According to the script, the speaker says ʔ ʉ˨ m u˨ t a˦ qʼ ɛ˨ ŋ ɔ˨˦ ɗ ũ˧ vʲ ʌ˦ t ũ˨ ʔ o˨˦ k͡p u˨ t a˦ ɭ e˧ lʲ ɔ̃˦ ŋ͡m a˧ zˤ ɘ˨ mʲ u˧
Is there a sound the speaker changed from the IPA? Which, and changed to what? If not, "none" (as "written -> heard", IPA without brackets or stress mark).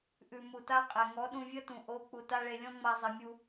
none